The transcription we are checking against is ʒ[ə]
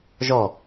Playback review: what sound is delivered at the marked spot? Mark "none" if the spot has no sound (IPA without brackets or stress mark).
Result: ɔ